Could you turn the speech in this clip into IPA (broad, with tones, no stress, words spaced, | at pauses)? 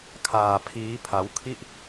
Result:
kʰaː˧pʰiː˦˥pʰa˦˥w kʰi˥˩ʔ